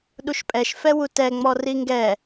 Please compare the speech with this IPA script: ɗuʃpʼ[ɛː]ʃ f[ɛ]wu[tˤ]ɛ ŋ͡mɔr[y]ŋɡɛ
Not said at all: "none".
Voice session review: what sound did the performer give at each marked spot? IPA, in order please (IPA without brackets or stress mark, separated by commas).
ɛ, ɛ, t, i